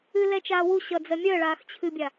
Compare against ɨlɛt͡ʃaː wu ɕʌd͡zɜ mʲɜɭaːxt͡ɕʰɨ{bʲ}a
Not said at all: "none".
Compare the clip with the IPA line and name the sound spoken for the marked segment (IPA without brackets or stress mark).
bʲ